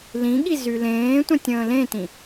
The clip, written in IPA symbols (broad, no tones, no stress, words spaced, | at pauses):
lĩɠi zylẽːtʷœ̃tʲ ə̃ːlẽtĩ